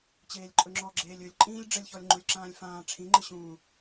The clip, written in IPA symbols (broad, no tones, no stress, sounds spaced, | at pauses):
t͡ɕ eː lʲ ǃʼ ɵ ŋ͡ǁ ɔ ɡ͡ǁ eː lʲ ɵ lʲ ǃʼ ĩː lʲ ɖ͡ʐ ə lʲ ç ɔ lʲ ŋ͡ǃ u lʲ ǁ ãː lʲ f ãː ʈ͡ʂʰ ĩ ŋ͡ǃ ɨ ɕ ũː